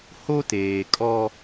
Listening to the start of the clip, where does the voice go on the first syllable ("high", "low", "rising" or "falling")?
high